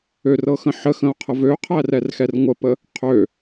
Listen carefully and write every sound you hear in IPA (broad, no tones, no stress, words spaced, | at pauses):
ørɤxə̃ ħəxə̃o̯qʰə vøqʰærɛrxɛr ŋʷəpə | qʰø